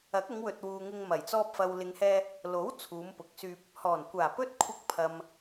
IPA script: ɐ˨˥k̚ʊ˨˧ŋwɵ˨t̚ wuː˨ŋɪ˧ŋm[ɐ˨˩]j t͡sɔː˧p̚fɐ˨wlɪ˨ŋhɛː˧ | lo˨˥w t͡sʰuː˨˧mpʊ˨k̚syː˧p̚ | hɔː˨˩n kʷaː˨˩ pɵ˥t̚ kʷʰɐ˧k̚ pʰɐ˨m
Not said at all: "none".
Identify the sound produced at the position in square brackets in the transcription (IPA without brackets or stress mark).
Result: ɐ˨˩